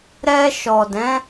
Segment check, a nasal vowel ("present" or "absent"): present